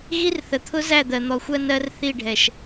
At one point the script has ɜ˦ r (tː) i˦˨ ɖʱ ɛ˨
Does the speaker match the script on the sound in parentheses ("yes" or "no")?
no